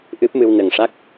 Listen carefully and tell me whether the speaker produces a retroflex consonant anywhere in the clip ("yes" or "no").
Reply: yes